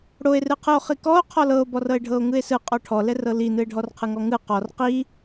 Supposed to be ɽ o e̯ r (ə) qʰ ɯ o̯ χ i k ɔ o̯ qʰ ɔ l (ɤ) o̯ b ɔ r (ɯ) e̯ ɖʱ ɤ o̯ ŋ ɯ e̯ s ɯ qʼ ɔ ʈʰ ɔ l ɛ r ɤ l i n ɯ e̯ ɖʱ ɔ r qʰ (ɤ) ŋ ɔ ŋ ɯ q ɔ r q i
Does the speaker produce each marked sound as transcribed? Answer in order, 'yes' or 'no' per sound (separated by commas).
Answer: no, yes, no, no